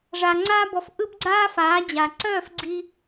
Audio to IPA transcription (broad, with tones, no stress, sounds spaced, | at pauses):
ʐ a˨ ŋ͡ǀ aː˧ b ɔ˨ f ʔ ɯ˦ b ɡ͡ǀ aː˦ f aː˨˦ d͡ʑ a˨ ǀ œː˦˨ f ɡ͡ǀ i˧